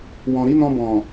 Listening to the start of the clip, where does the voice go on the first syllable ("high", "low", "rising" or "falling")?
low